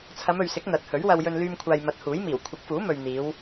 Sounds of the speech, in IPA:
t͡sʰɐ˨˧mɵ˨ɥsɪ˨˥k̚ n̪ɐ˨˥t̚ hɵ˨˥ɥwɐ˧wjɵ˧n lyː˧mkʷʰaː˨jmɐ˨˥t̚ huː˨˥jmiː˨˩w kʷʰɪ˨˥k̚fuː˨˥mɵ˨ɥ n̪iː˨˧w

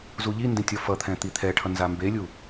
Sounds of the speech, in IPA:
zuʎindẽ tʲʌfʌt̪ʰɛ̃ t̪it̪ʰɛʈʰʌ nzambelʲu

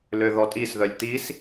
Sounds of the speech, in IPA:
løðɔtʼisðœlʲ t̪is

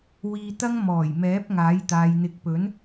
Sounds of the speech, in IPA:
wiː˧t̪ɐ˥ŋ mɔː˨˩j mɛː˨˥p̚ŋaː˨˥j t̪aː˨jn̪ɪ˨˥k̚pɵ˨˥n

